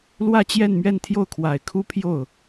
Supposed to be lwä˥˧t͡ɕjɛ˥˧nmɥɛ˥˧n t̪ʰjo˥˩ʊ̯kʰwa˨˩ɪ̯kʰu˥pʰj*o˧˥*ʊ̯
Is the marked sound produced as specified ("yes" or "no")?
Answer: no